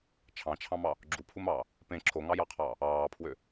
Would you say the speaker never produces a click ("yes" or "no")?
no